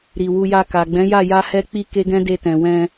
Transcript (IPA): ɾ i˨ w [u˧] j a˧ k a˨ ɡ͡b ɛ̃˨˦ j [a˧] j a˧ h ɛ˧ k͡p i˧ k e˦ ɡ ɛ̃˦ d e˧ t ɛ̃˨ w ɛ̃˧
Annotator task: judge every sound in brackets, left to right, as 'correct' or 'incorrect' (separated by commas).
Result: correct, incorrect